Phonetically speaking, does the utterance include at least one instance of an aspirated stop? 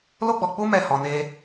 no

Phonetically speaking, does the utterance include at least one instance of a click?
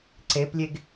yes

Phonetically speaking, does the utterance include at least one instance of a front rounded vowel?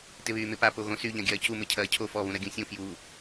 yes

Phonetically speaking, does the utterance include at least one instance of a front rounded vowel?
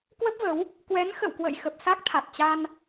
no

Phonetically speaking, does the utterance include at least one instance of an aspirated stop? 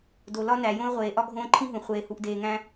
yes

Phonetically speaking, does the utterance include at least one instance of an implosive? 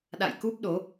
yes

